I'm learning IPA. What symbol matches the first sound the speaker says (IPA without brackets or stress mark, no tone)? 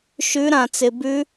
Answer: ʃ